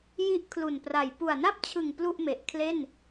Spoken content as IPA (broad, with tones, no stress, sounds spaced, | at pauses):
j i˥˩ ʔ kʰ l u˨˩ n p r a˨˩ j p u˨˩ a̯ n a˥˩ p̚ t͡ɕʰ ɯ˨˩ ŋ p l u˥˩ ʔ m e˨˩ ʔ kʰ l e˥˩ n